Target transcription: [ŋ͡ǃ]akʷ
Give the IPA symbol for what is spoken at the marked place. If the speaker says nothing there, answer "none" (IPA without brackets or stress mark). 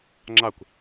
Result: ŋ͡ǁ